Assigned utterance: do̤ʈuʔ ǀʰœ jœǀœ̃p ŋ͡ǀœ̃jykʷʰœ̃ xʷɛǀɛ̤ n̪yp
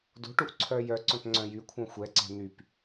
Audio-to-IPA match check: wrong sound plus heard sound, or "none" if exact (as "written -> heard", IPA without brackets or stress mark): none